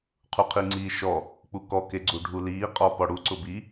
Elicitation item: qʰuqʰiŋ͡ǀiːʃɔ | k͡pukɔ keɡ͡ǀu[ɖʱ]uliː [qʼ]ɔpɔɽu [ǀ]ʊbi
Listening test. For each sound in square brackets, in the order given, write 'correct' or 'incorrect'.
correct, correct, correct

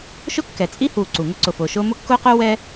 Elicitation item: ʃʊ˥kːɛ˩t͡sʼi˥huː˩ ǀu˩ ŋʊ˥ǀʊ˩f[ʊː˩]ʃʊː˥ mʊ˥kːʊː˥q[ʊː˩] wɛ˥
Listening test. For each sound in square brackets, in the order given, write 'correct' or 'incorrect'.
correct, incorrect: ʊː˥

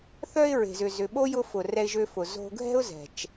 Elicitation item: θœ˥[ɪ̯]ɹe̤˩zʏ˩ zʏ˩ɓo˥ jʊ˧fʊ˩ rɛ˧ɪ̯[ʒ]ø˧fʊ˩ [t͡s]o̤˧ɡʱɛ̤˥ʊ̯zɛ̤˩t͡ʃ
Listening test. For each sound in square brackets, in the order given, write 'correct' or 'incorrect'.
correct, correct, incorrect: z

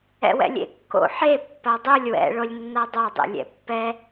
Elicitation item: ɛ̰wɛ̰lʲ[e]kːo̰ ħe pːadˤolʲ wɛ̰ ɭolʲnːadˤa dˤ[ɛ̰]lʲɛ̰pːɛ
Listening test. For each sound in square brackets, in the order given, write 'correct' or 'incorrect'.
incorrect: ḛ, incorrect: ḛ

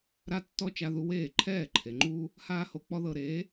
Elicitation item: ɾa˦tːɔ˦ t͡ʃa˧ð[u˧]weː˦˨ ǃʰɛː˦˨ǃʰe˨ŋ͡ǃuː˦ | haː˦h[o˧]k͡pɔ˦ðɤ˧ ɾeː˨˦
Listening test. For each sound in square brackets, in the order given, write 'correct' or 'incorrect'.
correct, correct

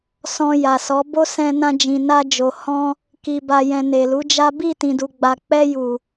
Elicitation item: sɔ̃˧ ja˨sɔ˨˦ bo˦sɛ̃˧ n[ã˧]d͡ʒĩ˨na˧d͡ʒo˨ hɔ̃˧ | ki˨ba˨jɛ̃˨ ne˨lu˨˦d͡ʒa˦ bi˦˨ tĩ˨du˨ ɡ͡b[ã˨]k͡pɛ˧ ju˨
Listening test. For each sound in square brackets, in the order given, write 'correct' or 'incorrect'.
correct, incorrect: a˨

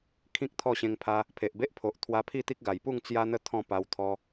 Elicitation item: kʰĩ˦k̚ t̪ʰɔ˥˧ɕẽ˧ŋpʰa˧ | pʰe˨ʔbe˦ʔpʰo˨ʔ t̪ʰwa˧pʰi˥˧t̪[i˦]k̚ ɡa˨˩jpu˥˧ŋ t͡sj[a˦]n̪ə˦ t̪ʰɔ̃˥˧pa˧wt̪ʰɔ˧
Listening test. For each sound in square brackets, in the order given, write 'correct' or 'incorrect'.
correct, correct

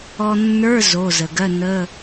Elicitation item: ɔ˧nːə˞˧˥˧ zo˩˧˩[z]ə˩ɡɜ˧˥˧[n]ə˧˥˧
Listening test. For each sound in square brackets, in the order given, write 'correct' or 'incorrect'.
correct, correct

